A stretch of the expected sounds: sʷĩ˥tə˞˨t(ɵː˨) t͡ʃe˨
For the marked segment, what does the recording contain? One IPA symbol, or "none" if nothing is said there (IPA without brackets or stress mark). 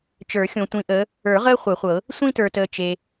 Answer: əː˨